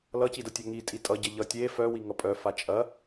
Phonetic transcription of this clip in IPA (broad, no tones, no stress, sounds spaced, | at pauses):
l ʌ c i d ɐ tʲ œ ŋ i tʼ i tʼ ʌ ɟ ɐ ʎ ʌ tʲ e f œ w i ŋ ʌ pʼ œ f a t͡ʃʼ ɐ